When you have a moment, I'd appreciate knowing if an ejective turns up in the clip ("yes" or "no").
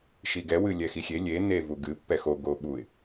no